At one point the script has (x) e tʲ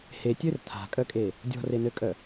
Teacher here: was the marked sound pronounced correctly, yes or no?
no